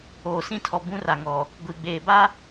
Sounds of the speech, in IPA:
oː˨ s ĩ˦ tʰ ɔ˨ b ũ˦ r a˨ ŋ ɔ˨ | ɡʷ i˨ ɡ͡b eː˨ b a˦

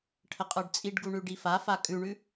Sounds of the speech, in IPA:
ʈʰ ə qʼ ə˞ ɖ t͡sʼ i ɖ ɡ u ɳ ʉ ɖ i f a f a kʼ ʉ ɳ ʉ

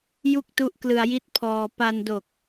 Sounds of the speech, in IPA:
j u˥˩ k̚ t u˦˥ ʔ k l ɯ˧ a̯ j i˦˥ t̚ pʰ ɔː˧ p a˧ n d o˨˩ k̚

